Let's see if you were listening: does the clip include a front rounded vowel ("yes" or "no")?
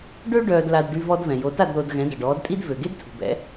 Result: yes